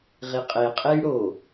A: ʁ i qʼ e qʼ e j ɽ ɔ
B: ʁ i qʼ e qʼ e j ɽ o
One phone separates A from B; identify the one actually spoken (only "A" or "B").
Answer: B